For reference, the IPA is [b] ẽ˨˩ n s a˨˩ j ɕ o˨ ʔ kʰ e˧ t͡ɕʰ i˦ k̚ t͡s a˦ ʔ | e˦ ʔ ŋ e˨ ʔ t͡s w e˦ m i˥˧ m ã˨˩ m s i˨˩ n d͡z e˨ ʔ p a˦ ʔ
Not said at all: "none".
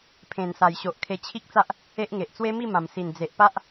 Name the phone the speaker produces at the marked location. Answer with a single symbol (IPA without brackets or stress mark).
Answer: pʰ